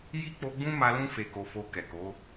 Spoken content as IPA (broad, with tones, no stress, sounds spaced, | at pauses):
j i˦ k͡p o˧ ɡ͡b ũ˦ m a˧ l ũ˦ f e˧ k o˧ f o˧ k ɛ˨ k o˨˦